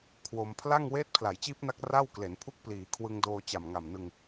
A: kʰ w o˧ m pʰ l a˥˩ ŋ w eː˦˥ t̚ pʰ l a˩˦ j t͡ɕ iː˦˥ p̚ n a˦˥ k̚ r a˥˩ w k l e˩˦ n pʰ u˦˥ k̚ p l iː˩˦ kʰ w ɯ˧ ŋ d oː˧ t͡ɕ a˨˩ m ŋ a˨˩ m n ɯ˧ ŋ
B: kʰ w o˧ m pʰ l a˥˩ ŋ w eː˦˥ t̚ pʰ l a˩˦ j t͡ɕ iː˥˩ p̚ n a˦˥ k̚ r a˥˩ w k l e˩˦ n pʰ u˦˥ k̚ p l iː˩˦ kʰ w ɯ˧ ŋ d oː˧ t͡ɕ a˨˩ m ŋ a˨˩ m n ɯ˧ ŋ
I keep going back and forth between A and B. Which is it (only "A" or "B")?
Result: A